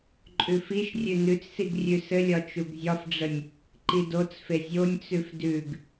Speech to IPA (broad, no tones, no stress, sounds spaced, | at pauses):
ǃʼ ʉ f i ʃ rʲ ʉ n ʉ t͡s s i ɡ rʲ ʉ s ɘ lʲ ɒ t͡ʃ u ɡ zʲ ɒ f ɖ͡ʐ ə nʲ | ǃ i d o t͡s f e zʲ o nʲ t͡s ʉ f d ʉ ɡ